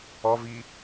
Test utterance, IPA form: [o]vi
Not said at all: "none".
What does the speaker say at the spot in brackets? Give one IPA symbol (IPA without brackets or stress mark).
ɔ